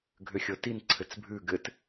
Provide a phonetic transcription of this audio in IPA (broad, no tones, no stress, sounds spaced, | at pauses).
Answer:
ɡʱ ʏ xʲ ɤ t i n ǀʰ ɘ t͡s bʱ ʉ ɡ ɘ t